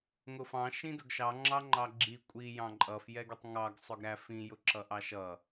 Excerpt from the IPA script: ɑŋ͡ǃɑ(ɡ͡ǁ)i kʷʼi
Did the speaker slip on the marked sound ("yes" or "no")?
no